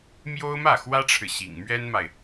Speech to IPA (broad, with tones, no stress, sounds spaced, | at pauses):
m j o˥ ʊ̯ m ä˥˩ x w ä˥ ʈ͡ʂʰ ɻ̩˨ ɕ ḭ˨˩ ŋ m ɥ ɛ˥ n m a˨ ɪ̯